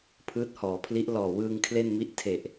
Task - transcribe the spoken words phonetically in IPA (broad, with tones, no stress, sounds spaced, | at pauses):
pʰ ɯː˦˥ t̚ h ɔː˩˦ pʰ l i˦˥ ʔ l ɔː˨˩ w ɯː˧ ŋ kʰ l e˥˩ n m i˦˥ ʔ tʰ e˨˩ ʔ